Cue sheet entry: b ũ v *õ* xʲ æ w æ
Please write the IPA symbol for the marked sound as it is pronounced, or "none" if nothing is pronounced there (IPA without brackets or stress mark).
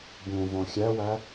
õ